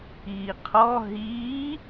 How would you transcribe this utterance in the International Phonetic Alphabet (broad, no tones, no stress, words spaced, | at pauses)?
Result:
iːqʰɔ ɦiː